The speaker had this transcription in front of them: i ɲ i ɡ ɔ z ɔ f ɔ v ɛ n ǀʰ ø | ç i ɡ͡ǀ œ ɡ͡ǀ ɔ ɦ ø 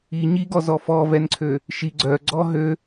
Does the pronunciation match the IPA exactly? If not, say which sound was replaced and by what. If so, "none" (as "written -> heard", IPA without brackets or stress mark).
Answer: ç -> ʃ